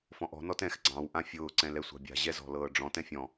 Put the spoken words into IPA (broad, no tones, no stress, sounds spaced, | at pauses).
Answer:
f ɔ̃ ʔ ɔ̤ n ɔ t ɛ̃ x ɡ͡ǀ ɑ̃ w ʔ ã fʲ ʊː ǀ ɛ̃ l ɛ sʷ ɑ̤ bʲ a̤ ʑ ɛ z ɔ̤ l ɤː ɖ͡ʐ ɔ̃ t ɛ̃ fʲ ɔ̃